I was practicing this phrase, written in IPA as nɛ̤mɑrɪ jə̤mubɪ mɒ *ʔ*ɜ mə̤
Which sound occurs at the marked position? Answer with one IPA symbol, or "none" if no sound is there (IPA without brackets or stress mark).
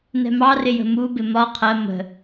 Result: qʰ